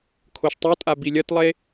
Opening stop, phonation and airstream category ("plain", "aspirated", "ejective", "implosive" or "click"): aspirated